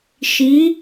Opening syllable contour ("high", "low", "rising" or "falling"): rising